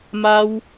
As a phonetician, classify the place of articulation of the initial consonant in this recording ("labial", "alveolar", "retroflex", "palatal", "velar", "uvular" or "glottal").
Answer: labial